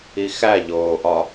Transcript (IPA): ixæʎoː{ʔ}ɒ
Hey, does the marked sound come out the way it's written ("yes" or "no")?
yes